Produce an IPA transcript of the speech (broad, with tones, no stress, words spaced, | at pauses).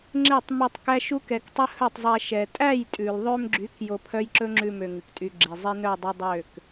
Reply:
ŋ͡ǁe˦˨tˤmi˧tˤ kæ˦ʃu˦kɛ˧ktˤɵ˦ hœ˦˨tˤzˤæ˧ ʃɛ˨ tʼæ˦˨jtʼʉ˨lðˤø˧mɡ͡ǁy˨˦k jo˧ pʰœ˦jǁɵ˦ŋ͡ǁʉ˧ mø˧ŋʉ˨ktʼy˧ ɡ͡ǁe˨zˤe˦nœ˦˨ dˤi˧dˤø˦˨k